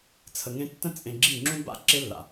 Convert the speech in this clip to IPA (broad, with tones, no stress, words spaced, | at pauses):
t͡sʰə˧ŋẽ˦ tːə̃˦t͡sʼẽ˧ɡ͡ǁi˦˨ŋ͡ǁũ˦ ba̰˦ ǁe˦lːa̰˨